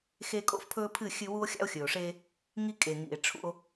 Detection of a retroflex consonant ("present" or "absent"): present